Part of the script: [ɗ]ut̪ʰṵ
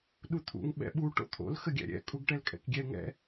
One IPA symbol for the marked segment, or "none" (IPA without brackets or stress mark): ɗ